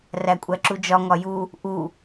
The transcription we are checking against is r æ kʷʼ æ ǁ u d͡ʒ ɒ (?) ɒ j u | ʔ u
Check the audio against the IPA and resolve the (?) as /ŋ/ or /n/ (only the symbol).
ŋ